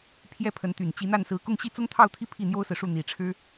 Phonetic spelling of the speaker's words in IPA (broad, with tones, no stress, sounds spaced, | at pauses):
pʰ j ɛ˥˩ pʰ ə˧˥ n t̪ y˨˩ n t͡ɕ i˧˥ n̪ a˥˩ n s ɹ̩˧˥ k ʊ˥˧ ŋ ɕ i˥˩ t͡s ʊ˥ ŋ t̪ʰ ɑ˥˧ ʊ̯ t̪ʰ i˥˧ pʰ i˥˩ n̪ j o˥ ʊ̯ s ɹ̩˨ ʂ u˥˩ n̪ i˨˩ ʈ͡ʂʰ ɻ̩˥